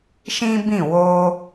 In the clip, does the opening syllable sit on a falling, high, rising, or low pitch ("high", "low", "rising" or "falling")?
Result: high